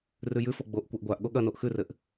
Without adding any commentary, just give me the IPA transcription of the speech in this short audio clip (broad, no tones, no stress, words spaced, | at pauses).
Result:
rʉjʉfo ɡ͡boʔ kʷaʔɡʷaʔɠo ɠɐnoʔ xʉrɘʔ